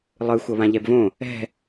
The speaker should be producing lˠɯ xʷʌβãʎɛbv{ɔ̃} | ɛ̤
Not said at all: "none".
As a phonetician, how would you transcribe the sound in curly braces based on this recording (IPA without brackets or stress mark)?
õ